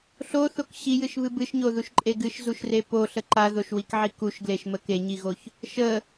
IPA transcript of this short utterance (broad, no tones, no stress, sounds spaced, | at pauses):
ɬ o θ o k ɕ i j ɨ ʃ β ɨ b ɨ ʃ ɲ o ð u ʃ ǃʼ e ɡ ɨ ʃ z u ʃ r e p o ɬ ə ǃ a ð o ʃ w i k ʕ i k u ʃ ɡ l e ʃ m ə k e ɲ i ɣ o ç | ʃ ə